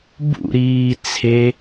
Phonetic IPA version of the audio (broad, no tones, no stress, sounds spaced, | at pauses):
b ṵ ɾ iː t͡sʰ e